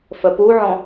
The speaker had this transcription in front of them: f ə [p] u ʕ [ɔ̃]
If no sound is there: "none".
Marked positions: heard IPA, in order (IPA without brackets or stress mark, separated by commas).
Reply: p, ɔ̃